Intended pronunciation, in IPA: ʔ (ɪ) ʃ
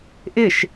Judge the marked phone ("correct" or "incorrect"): correct